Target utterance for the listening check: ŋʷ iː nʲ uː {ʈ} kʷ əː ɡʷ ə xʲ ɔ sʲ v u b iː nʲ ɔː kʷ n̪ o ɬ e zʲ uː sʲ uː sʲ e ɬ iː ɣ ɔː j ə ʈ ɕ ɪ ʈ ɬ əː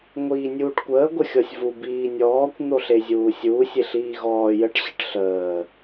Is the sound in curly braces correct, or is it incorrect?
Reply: correct